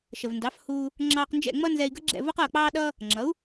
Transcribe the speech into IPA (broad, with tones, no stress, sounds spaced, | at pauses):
ʃ ə˩ v n d ɑ˩˥ f h uː˧ | ŋ͡ǁ ɑː˧ q n d͡ʒ ɛ̰˥˩ ŋ͡m ʌ˥ n z ɛ˧ i̯ ɡ ə˥ ɡ͡ǁ ɛ̰˥˩ v ʊ˥ q ʌː˥˩ k͡p ɑː˥ ɗ ʌː˥ | ŋ͡ǁ ʌ˩˥ u̯